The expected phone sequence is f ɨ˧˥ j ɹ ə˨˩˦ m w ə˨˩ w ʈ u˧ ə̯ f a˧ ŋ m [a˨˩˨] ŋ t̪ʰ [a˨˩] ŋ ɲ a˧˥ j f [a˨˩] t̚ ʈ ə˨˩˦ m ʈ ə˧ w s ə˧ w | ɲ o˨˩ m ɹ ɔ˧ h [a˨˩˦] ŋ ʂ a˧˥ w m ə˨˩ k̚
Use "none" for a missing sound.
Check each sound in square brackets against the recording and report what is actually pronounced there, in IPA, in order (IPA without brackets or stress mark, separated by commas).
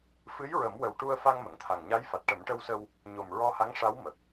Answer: ə˨˩˨, a˨˩, a˨˩, a˧˥